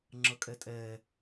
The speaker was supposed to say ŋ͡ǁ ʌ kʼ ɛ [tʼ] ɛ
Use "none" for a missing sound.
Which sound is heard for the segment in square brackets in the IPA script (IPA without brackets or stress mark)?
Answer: tʼ